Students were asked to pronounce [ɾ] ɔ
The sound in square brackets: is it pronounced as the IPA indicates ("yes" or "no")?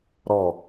yes